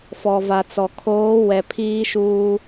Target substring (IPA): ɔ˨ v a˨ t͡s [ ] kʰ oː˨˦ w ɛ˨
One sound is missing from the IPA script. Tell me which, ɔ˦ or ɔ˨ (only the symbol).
ɔ˨